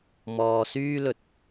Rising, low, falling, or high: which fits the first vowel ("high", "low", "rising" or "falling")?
low